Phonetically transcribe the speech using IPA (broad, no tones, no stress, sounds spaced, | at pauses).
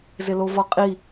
z ɪ l o v ɔ qʼ i